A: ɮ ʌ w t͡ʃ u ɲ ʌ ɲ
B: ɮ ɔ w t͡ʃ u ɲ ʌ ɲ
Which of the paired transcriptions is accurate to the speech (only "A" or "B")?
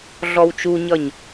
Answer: B